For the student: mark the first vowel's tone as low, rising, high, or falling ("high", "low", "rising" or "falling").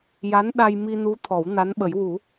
rising